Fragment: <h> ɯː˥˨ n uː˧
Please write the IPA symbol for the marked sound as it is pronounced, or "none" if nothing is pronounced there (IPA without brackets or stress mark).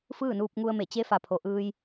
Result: f